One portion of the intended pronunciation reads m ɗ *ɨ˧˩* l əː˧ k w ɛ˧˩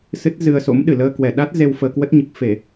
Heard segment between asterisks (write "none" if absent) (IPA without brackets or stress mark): ɨ˧˩